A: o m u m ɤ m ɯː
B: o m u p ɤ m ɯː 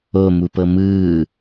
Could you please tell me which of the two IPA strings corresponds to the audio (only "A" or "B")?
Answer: B